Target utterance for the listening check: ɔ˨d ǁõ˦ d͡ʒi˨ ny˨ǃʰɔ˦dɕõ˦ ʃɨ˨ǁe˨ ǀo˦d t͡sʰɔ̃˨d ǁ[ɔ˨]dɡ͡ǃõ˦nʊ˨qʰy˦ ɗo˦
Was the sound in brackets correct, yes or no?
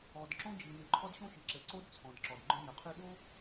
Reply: yes